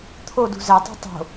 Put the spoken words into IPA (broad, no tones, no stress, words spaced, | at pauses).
t̪ʰodṳ zætˤṳ tˤo̤